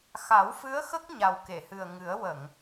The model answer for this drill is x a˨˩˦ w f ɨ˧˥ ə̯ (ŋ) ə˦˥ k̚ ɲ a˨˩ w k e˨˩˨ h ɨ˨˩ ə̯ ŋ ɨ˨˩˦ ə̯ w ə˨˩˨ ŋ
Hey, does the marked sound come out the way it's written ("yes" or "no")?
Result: no